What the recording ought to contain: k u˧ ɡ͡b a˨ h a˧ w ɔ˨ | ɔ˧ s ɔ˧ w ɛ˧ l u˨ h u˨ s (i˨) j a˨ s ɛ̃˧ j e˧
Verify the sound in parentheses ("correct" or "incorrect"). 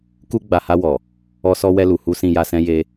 incorrect